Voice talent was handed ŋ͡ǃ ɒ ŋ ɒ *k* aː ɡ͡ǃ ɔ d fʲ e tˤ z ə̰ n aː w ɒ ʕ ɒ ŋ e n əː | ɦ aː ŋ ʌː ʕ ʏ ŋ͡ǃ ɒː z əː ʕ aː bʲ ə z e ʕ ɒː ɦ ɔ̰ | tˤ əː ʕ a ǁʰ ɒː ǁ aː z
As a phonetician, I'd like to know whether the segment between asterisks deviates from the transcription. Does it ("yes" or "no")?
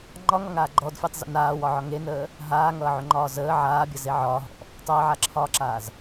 yes